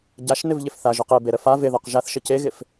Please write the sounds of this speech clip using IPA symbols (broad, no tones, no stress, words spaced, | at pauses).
ɟaʃnɪvʎɪf θaʒoq ebeɾə fa vɪðɔq ʒaθʃə ceɣɪf